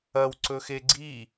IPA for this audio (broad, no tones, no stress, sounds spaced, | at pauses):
ɐ w ǀ ɵ x e ɡ͡ǀ i